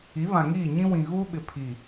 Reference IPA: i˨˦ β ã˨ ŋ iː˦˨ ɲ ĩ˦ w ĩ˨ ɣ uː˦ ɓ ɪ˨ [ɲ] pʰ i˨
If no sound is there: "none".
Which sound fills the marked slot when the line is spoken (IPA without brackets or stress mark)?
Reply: none